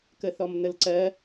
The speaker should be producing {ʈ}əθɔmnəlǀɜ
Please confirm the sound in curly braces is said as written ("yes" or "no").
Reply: no